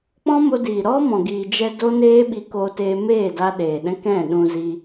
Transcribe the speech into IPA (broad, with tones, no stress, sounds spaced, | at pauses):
k͡p ɔ̃˦ m o˧ d iː˨ ɾ ɔ˦ m ɔ̃˨ ɡ iː˨ d͡ʒ ɛ˧ d o˦ n eː˦ ɓ i˧ k o˧ t eː˧ m eː˦˨ d a˧ ɗ eː˨ ɗ ɛ̃˦ k ɛ̃˦˨ ɗ ũ˧ z i˧